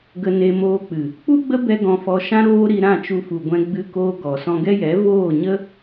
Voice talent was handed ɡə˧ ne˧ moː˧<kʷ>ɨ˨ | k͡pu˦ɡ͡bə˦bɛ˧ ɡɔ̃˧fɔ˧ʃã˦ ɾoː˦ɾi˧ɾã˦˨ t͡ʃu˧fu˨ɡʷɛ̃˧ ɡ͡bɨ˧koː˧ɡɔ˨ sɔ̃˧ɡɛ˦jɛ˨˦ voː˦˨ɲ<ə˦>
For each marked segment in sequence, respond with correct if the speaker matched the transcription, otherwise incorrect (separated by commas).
incorrect, correct